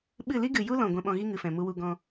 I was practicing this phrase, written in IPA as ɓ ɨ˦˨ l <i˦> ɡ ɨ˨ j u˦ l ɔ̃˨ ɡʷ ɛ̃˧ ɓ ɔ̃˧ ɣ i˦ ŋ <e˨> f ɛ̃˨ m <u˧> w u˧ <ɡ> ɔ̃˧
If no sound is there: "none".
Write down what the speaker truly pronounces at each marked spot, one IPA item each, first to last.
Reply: i˦, ɨ˨, u˧, ɡ

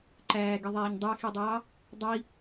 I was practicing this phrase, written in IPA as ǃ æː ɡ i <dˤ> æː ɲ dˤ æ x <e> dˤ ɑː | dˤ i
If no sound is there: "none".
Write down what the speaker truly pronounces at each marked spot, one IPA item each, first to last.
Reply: ðˤ, i

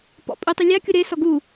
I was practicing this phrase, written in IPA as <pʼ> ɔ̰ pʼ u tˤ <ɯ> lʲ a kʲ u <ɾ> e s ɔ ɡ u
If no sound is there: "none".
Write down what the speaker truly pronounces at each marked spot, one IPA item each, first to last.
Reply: p, ɯ, ɾ

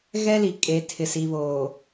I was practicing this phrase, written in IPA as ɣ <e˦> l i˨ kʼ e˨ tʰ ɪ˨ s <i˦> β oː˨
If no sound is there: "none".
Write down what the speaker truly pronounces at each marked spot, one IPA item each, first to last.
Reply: ɛ˦, i˨

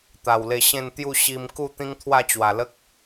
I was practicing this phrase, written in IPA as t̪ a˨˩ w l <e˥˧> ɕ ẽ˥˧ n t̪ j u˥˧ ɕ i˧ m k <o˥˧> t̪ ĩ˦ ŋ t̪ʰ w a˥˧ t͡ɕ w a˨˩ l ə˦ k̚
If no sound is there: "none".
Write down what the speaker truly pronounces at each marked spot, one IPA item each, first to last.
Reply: e˧, u˥˧

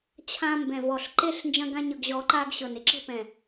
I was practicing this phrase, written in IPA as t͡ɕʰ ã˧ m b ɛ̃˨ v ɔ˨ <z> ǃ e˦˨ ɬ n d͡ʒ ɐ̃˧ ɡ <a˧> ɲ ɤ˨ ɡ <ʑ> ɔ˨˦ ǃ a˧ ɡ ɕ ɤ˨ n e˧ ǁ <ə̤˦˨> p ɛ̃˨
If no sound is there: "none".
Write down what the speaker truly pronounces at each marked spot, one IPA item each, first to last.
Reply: ɬ, ã˧, ʑ, ə̤˧

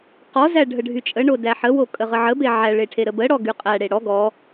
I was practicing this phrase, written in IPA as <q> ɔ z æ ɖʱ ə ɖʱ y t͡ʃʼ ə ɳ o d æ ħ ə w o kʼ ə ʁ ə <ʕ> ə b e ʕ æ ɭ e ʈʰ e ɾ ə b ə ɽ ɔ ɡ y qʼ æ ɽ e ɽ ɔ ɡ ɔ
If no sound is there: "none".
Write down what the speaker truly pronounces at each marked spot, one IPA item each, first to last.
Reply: q, ʕ

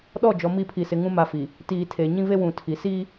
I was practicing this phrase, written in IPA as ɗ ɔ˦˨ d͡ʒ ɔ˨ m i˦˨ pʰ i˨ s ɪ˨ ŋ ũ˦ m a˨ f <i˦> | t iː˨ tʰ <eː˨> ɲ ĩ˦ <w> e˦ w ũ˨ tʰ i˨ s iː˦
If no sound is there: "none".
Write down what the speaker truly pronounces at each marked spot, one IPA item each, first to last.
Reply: i˨, eː˨, v

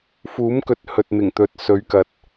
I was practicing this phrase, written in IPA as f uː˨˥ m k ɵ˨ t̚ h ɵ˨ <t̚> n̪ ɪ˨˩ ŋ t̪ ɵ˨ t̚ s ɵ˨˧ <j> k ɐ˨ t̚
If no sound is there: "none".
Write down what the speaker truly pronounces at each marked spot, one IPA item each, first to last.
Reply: t̚, ɥ

